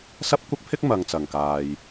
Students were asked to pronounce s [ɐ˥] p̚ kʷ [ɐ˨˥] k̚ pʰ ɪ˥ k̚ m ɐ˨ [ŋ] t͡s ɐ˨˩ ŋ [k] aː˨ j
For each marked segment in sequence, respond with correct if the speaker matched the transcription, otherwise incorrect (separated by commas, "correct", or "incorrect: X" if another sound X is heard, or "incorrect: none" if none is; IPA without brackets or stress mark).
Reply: correct, incorrect: ɐ˥, correct, correct